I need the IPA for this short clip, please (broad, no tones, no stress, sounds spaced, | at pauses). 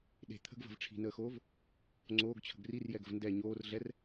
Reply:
ɗ e̤ t̪ʰ ə̤ ɡ v ə̤ v ʈ͡ʂʰ i̤ n əː x oː v | ŋ͡ǀ oː ɡ t͡ɕʰ ə̤ ɡ r i r j ɛ ɡ ə̤ v n d ɛ ɲ oː r ɮ ɛ r